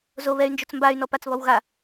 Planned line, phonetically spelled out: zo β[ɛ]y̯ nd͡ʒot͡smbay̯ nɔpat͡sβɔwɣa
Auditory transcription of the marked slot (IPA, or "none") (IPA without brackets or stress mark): ɛ